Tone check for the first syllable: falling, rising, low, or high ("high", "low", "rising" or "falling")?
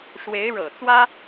rising